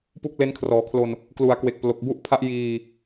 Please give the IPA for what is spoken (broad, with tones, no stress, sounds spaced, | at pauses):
p u˥˩ k̚ l e˦˥ n kʰ r ɔː˩˦ kʰ l o˧ n | k l u˩˦ a̯ k w e˨˩ k̚ p l o˨˩ k̚ b u˥˩ ʔ pʰ a˦˥ ʔ j iː˧